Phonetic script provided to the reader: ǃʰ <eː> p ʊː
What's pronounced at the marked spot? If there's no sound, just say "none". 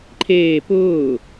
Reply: eː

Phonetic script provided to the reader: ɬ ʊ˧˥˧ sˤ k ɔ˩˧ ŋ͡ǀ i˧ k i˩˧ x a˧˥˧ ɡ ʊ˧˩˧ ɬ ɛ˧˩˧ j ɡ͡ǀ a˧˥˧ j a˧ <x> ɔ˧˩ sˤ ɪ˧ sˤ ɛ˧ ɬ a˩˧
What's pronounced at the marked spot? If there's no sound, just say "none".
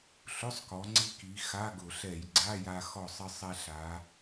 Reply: x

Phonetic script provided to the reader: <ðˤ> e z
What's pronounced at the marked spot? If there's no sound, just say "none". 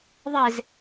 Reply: ðˤ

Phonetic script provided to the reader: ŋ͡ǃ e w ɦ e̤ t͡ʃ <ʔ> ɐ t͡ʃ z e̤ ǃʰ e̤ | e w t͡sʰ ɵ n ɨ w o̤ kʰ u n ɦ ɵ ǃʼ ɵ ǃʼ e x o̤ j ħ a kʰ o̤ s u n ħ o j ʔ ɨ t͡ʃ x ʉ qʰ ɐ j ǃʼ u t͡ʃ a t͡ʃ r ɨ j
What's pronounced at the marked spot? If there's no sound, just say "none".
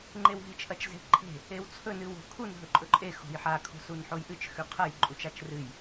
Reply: ʔ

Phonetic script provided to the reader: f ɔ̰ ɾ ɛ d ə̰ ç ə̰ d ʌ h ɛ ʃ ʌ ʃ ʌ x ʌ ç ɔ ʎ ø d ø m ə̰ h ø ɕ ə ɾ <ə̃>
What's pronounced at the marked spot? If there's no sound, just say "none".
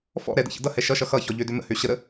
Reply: ə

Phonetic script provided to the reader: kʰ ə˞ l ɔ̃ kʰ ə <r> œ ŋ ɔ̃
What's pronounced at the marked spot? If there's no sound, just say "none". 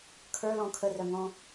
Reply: r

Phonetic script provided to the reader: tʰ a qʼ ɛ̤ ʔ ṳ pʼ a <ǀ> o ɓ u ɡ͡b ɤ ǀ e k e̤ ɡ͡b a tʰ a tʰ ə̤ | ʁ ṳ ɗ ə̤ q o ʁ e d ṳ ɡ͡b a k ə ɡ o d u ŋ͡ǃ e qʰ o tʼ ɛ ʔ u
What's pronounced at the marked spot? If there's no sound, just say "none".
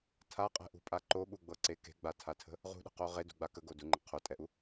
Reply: ǃ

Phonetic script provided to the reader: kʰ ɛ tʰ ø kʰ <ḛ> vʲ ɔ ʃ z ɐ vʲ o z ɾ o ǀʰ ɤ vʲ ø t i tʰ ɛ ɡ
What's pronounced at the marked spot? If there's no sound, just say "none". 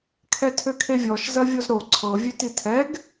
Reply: e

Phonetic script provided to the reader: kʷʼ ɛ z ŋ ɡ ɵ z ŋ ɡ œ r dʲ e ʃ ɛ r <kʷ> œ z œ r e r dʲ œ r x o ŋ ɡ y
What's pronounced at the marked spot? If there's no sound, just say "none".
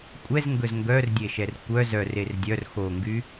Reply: kʷ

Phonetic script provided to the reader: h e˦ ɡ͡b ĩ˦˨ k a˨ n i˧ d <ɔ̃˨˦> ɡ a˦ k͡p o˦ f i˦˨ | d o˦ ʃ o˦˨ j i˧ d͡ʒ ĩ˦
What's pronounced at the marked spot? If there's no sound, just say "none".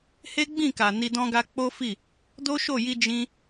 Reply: ɔ̃˦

